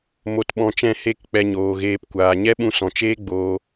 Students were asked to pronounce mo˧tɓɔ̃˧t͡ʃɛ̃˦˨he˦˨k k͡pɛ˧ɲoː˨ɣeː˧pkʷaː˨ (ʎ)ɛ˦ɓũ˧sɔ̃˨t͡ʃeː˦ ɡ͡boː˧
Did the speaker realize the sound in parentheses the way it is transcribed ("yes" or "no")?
no